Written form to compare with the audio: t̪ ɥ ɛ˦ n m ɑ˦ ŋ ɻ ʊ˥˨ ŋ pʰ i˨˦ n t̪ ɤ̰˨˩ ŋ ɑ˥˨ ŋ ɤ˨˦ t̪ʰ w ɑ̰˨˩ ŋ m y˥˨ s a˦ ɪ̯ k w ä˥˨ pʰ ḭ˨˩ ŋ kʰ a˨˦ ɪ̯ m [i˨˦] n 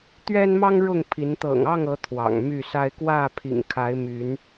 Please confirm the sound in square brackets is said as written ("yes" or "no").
no